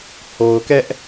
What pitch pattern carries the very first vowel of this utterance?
low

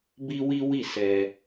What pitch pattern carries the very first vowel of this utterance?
high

